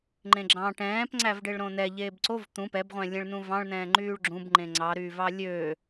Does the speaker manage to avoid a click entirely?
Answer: no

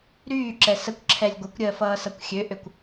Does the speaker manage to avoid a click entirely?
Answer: no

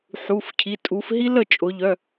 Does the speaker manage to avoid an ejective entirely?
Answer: no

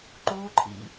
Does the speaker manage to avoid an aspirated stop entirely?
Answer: no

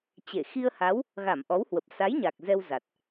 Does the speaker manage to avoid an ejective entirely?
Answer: yes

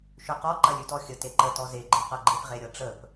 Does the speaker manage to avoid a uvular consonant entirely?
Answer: no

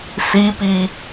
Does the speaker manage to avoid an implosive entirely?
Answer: yes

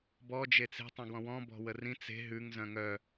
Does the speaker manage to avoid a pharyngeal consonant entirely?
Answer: yes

